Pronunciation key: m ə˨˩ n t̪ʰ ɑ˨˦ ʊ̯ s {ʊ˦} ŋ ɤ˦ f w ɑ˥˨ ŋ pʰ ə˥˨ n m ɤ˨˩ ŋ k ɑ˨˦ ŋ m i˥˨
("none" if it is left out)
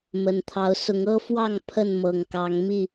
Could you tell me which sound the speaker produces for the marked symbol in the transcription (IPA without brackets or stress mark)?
ʊ˨˦